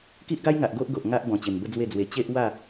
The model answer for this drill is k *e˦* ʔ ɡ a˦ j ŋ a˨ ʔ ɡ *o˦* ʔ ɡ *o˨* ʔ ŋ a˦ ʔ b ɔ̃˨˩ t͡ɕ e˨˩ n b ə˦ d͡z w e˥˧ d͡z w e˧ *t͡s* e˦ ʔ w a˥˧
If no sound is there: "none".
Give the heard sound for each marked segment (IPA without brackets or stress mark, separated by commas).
i˦, o˦, o˨, t͡ɕ